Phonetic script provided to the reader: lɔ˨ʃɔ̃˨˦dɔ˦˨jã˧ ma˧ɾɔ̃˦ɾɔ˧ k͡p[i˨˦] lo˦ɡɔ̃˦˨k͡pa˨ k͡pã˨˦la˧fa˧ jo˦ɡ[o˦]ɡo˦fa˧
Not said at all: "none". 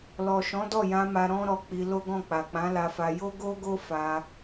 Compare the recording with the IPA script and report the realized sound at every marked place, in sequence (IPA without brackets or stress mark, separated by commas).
i˧, o˦